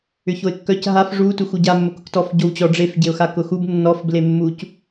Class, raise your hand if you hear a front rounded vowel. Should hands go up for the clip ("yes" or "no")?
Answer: yes